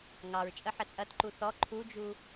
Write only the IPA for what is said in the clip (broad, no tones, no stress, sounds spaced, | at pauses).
ŋ ɑ ɹ t͡ʃʼ ə ħ ə t͡sʼ ɐ t ǃ u θ ɔ ǃʰ u d͡ʒ u